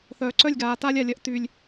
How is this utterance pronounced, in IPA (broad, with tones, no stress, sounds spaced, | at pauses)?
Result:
θ œː˨ ǀ œ˦˨ lʲ ɡ aː˨ t a˦ lʲ a˨ lʲ ɐ˦ ʔ t y˦ lʲ